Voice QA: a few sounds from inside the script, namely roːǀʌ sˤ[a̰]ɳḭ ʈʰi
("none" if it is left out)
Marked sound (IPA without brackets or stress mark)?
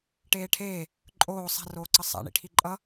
a̰